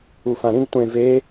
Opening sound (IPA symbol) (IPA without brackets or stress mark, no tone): u